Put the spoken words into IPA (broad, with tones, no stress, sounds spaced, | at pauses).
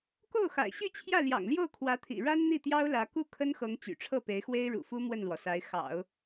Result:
k o˥˩ ʊ̯ x a̰˨˩ ɪ̯ ɕ y˥˧ t͡ɕʰ j ä˥˩ l j ɑ̰˨˩ ŋ l j o˥˩ ʊ̯ kʰ w ä˧˥ t̪ʰ ḭ˨˩ ɻ a˥ n n̪ i˥˩ t̪ j ɑ˥ ʊ̯ l ä˧˥ k u˥˩ kʰ ə˥ n x ɤ˧˥ ŋ t͡ɕ y̰˨˩ ʈ͡ʂʰ ɤ˥˩ p e˧˥ ɪ̯ x w e˥ ɪ̯ ɻ ṵ˨˩ f u˥ m w ə˥˩ n l w ɔ˩ s a˧˥ ɪ̯ x ɑ̰˨˩˦ ʊ̯